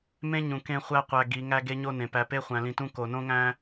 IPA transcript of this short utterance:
m ẽ˦ ɲ ũ˨ k ẽ˦ χʷ æ˦ qʷ æ˨ ɡ i˨˦ ŋ æ˦ ɡ e˦ ɲ o˦ n ẽ˨ p æ˨ p e˦ χʷ æ̃˨ l ĩ˨ t ũ˦ k o˨ n õ˦ ŋ æ̃˦

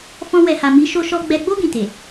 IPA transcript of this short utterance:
f ɔ̃˧ w ɛ˨ h a˨ m i˨˦ ʃ o˧ ʃ ɔ˧ ɡ͡b ɛ˧ ɡ͡b o˦ ɡ ĩ˦˨ t e˨

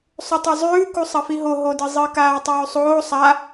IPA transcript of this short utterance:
sˤ ʉ tˤ ɵ zˤ ʉː k u sˤ ɐ f i ɦ o ɦ o d ɨ zˤ ɨ k aː tˤ ʉː sˤ oː sˤ a

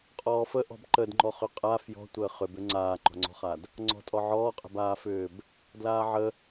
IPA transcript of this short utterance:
qʼ ɔː f ə ʔ ɔ̤ b ǃ ə d ŋ͡ǃ ɔ χ ʏ qʼ a f j ɔ̤ tʷ əː χ ʏ b ʏ ŋ͡ǀ aː ŋ͡ǃ ɔ̤ ŋ͡ǀ ɔ̤ χ a d | ŋ͡ǀ ɔ̤ tʼ ɔ ʕ ɔː qʼ ə̤ b aː f ʏː b | d l aː ʕ ə

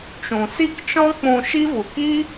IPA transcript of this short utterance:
t͡ʃ ũ˨ s i˦˨ k t͡ʃ ɔ̃˦ k͡p ũ˧ ʃ i˦ v u˨ k i˦

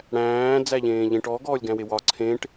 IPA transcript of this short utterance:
ɽ æ̃ː d͡z æ ʎ ẽː ʎ ẽ ʈ ɔ ɡ ɔː lʲ ɡ æ̃ w e w ɒ ǀʰ ẽ ʈ

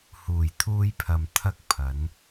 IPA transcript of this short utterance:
h uː˨˩ j t̪ʰ uː˧ j pʰ ɐ˨ m t̪ʰ ɐ˧ k̚ pʰ ɐ˨˧ n

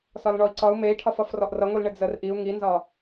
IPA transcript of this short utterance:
s ɒ l ɳ ɔ i̯ ǀ ɒ u̯ m e i̯ ʈʰ ɒ f ʌ f r ɔ ʔ r ʌ ŋʷ i l ɳ ɘ d͡z ə r ʔ i u̯ ŋ i n z ɒ

